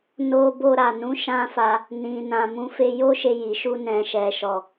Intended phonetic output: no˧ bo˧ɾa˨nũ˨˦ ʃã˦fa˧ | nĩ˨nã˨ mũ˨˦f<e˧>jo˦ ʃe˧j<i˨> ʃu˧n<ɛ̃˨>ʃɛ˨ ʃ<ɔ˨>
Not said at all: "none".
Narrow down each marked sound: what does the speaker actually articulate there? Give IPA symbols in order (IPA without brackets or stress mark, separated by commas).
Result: e˧, i˨, ɛ̃˨, ɔ˨